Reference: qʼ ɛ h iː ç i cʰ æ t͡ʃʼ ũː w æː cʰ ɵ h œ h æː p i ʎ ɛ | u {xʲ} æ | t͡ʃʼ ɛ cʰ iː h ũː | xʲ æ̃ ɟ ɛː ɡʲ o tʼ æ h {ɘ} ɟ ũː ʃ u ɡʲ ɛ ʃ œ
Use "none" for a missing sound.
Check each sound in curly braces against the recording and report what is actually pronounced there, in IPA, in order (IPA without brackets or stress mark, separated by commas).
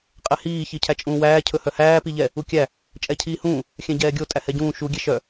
kʲ, ɛ